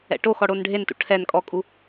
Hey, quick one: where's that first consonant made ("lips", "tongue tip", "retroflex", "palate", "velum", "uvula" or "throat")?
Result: retroflex